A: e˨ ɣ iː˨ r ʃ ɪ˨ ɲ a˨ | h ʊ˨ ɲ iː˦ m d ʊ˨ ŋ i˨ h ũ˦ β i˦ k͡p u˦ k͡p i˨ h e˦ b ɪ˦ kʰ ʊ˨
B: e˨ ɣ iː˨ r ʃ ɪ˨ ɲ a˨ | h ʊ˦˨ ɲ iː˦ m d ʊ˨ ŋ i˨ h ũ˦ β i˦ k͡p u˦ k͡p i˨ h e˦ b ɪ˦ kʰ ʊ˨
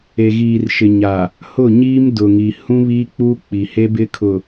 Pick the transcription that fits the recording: B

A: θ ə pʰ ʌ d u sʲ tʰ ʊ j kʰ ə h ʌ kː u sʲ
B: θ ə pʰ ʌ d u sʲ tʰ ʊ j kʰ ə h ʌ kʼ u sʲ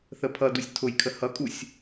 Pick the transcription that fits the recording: B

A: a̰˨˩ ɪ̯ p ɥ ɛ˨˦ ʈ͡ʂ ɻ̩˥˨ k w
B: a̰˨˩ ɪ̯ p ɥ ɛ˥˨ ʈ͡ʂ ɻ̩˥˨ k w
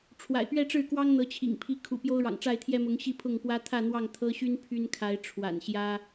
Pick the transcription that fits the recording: B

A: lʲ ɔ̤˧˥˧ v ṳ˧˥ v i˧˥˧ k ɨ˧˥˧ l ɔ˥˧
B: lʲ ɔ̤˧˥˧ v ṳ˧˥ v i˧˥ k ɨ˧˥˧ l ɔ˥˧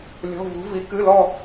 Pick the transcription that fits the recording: B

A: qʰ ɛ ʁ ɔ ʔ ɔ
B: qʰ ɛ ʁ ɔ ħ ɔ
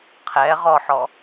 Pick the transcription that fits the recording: B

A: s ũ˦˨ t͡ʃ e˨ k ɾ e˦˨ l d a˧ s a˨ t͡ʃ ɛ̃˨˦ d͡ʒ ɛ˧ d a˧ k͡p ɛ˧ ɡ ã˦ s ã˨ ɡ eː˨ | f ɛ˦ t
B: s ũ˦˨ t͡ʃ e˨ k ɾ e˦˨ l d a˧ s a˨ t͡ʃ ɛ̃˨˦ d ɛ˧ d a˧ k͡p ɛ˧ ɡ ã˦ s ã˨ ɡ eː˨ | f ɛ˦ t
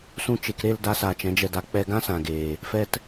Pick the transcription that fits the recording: A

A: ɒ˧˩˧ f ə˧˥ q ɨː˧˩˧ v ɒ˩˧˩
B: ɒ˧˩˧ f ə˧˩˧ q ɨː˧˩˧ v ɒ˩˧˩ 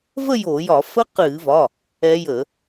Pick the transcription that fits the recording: A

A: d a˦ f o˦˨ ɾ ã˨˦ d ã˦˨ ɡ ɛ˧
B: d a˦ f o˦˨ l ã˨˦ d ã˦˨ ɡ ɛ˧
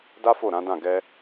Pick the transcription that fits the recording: A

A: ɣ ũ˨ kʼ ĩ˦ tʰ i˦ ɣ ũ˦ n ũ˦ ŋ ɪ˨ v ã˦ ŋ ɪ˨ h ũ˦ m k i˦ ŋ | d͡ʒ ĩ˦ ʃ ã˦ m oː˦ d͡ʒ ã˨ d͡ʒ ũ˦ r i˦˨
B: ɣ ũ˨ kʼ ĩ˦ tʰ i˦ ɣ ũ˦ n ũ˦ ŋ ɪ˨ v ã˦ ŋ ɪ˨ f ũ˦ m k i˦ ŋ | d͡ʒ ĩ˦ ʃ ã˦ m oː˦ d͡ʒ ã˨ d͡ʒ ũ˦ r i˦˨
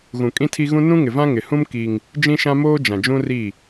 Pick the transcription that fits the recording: A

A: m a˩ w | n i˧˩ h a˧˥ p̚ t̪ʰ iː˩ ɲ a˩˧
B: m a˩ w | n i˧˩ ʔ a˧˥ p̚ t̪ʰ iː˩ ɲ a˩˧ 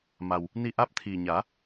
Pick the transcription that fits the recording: B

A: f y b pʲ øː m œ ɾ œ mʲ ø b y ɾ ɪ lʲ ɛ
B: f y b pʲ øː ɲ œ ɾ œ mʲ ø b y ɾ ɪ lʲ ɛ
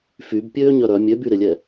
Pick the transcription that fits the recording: B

